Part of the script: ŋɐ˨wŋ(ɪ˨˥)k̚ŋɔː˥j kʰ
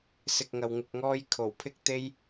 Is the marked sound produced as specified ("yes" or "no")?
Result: no